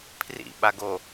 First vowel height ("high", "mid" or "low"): high